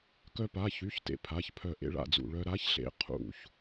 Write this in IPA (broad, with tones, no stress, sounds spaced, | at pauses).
k œ˧ p a˩˧˩ ç y˩˧˩ ç t ḛ˧ pʰ a˩˧˩ ç pʰ œ˧˩ ʔ ḛ˧ ɭ a̰˧˩ d͡z ṵ˧˩ ɭ œ˧ ɾ a˧˥ ç ɬ ḛ˧ qʰ ṵ˧˩ ç